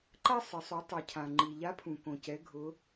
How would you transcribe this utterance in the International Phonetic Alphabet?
ǃ a˥ sˤ ɪ˩˧ sˤ u˩˧ tˤ i˩ cʰ ã˩ ŋ͡ǃ i˩ ʎ a˧˥ pʰ ũ˩ k õ˩ c ɛ˩˧ ɡʱ ʊ˩˧

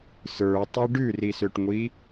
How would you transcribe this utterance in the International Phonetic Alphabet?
s ə˞ tˤ i ɖ ʉ r i s ø ʈ ŋʷ i

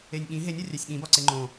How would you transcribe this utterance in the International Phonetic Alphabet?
e nʲ ɠ ĩ ɦ e nʲ ɒ rʲ æ sʲ ɠ ĩ b ɒ ǀ e ŋ͡ǃ õ

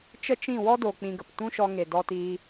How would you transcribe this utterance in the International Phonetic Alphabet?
t͡ʃ ə˦ t͡ʃ ĩ˦˨ w ɔ˦ d o˨ k͡p ĩ˧ ɡ ə˨ p t ũ˦ ʃ ɔ˧ ŋ e˨ d ɔ˧ t iː˧

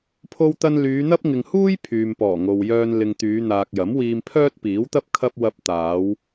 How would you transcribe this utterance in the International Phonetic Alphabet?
pʰ o˧ w t̪ ɐ˧ n l yː˨˧ n̪ ɐ˥ p̚ ŋ ɪ˨ ŋ h uː˥ j pʰ yː˨ m p ɔː˨˩ ŋ o˨ w j œː˧ n l ɪ˨ ŋ t̪ yː˨˧ n̪ aː˨ k̚ j ɐ˨˥ m w iː˧ m pʰ œː˥ t̚ p iː˨˥ w t̪ ɐ˥ p̚ kʰ ɐ˧ p̚ w ɐ˧ p̚ t̪ aː˨˧ w

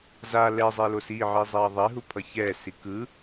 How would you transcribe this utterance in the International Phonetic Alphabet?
z a l ɛ zˤ e l o s i ʕ i zˤ e ɐ̯ ðˤ ɛ ɦ u pʰ ʌ ç ɛ s i k ɯ

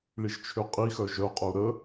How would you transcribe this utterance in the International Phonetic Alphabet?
ɭ i ʒ t͡ʃʰ ø qʼ i x œ ʒ œ qʼ œ u̯ ɾ ə

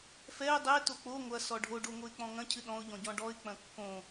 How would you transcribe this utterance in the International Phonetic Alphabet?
f ɛ ə̯ dˤ ɛ t o k͡p o ŋʷ ɐ s ɔ ɖʱ o ɖ o ŋ o ɪ̯ k͡p ɔ̃ ŋ ɐ̃ cʰ ɨ ɗ ɔ̃ ʊ̯ ʎ ɔ̃ ɟ ɔ̃ ɖ ɔ ɪ̯ k͡p ɐ̃ kː õ

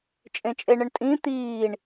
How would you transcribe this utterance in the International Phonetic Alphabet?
t͡ʃʼ ẽ t͡ʃʼ e ɳ ə ɳ tʼ ĩ t̪ iː ɳ

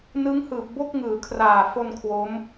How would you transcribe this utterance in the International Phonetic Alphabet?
n ɯ˦˥ ŋ h ɯː˨˩ p̚ b o˥˩ k̚ ŋ ɯː˩˦ kʰ r aː˨˩ f o˧ n kʰ w o˦˥ m

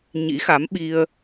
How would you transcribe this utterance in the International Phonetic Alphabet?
ɲ ḭ˧˥ x a˨˦ m ɓ i˧ ə̯

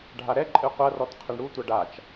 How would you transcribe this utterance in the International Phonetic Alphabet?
ɖʱ a ɾ ɛ ǃʼ ɨ qʷ ɐ r ɔ t qʰ ɘ ɳ ɽ u tʷ ɐ ɖ a t͡ʃ

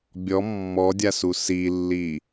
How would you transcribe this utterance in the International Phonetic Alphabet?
bʲ ɔ mː ɔ dʲ a s u s i lː i

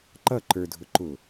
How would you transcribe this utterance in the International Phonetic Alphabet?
ǃ ʌ ǃ ə˞ dʱ ʊ ǃ ʊ

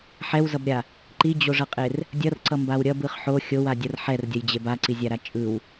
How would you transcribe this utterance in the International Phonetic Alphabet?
ħ ɛ w z ʌ b ɾʲ a | ǃ i d͡ʑ o ʐ ʌ qʼ e r | dʲ ʌ r ǀ ʌ m b a w ɾʲ ʌ b ɯ χ ħ o xʲ o w a dʲ ʌ r ħ ɛ r dʲ ʌ j d͡ʑ e b a ǀ i zʲ a ɾ a t͡ʃʼ ɯ w

